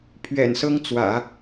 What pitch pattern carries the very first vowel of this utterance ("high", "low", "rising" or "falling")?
low